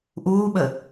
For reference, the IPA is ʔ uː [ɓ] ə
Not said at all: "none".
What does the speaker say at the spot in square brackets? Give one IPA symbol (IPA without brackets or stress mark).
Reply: ɓ